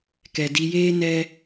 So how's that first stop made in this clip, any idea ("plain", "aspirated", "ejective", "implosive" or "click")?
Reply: plain